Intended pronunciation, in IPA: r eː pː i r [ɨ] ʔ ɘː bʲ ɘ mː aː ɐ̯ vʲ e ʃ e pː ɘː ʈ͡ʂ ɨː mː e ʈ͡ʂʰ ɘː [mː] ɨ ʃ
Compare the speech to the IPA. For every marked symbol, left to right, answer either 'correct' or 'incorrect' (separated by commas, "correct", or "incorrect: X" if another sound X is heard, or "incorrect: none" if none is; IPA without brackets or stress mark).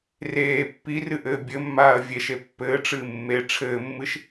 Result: correct, correct